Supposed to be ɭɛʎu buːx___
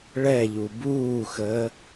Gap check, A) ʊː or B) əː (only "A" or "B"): B